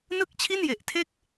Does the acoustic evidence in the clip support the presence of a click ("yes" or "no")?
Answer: no